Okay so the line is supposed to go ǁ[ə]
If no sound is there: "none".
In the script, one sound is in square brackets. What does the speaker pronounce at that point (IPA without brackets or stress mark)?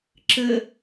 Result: ə